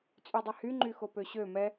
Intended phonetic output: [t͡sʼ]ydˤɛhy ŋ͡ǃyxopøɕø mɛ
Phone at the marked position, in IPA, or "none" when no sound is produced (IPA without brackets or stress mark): t͡sʼ